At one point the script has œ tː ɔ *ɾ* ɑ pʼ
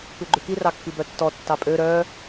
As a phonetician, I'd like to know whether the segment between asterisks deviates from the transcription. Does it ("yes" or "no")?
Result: yes